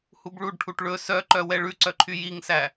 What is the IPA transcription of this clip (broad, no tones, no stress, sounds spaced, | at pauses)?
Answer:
h u b ɭ u ɖ ʈʰ u ʈ ɭ ɵ s œ ǃ œ w ɛ ɭ ʉ ǀ œ ǃʰ y j i ŋ s æ